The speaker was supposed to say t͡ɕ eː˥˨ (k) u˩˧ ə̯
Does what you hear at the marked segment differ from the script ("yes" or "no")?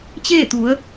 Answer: yes